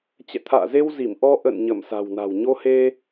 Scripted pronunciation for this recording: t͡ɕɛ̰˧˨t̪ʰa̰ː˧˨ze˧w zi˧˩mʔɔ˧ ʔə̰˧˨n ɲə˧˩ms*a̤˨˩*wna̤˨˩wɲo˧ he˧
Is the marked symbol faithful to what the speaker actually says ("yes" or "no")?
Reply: yes